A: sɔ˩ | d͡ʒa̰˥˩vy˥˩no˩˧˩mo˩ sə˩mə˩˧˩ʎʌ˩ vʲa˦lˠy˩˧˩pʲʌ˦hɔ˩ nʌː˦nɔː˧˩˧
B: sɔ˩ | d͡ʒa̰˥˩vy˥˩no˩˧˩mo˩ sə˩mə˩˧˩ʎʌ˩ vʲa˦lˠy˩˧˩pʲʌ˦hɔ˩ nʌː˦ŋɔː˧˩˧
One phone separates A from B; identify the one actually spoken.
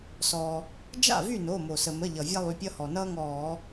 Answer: B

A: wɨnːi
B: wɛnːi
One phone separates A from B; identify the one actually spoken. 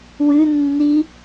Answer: A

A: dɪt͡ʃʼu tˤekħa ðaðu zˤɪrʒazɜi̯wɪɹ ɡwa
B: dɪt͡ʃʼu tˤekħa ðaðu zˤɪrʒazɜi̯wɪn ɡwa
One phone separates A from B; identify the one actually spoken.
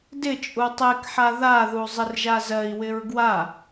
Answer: A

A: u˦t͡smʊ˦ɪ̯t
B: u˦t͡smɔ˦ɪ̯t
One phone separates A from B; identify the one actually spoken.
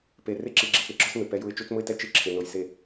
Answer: A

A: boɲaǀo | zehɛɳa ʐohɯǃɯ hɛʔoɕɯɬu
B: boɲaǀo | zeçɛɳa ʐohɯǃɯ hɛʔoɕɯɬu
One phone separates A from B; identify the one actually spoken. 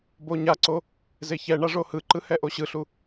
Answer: B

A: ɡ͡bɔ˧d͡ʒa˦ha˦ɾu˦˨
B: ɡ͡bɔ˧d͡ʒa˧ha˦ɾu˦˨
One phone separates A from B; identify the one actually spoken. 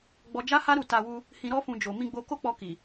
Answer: A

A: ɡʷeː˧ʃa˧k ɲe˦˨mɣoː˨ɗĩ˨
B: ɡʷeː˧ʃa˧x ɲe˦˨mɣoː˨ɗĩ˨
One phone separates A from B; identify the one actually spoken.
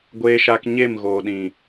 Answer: A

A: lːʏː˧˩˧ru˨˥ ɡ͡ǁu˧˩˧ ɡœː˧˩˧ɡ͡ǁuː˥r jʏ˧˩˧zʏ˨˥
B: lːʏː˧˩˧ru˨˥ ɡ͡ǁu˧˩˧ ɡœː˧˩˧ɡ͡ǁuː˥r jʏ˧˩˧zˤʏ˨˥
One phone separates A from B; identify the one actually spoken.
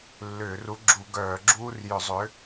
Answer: B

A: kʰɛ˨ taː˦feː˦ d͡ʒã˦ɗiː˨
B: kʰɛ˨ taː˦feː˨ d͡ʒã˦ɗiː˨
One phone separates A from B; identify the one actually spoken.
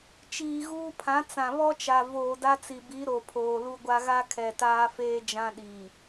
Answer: A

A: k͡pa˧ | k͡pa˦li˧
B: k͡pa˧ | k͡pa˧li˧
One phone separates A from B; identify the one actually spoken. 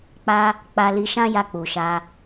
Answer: B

